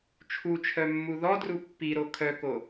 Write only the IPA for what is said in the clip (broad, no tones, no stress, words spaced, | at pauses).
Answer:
t͡ʃʰut͡ʃʰœmːu ðɔdru pːiɾo kʰœko